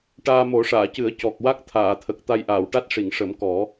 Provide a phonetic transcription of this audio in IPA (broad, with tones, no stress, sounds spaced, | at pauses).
ʈ aː˧ m o˨˩˦ ʂ aː˨˩˨ c ɨ˨˩˦ ə̯ c ɔ˨˩ k̚ w a˦˥ k̚ t̪ʰ aː˨˩˨ t̪ʰ ə˨˩ k̚ t̪ a˧ j ʔ aː˨˩˨ w ʈ a˦˥ t̚ ʂ i˨˩˨ ŋ ʂ ə˨˩˦ m k ɔ˨˩˦